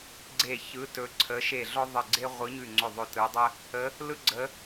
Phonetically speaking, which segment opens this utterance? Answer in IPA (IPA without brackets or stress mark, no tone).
ɡ͡ǀ